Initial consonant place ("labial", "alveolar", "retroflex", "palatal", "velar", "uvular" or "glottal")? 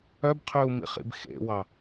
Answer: labial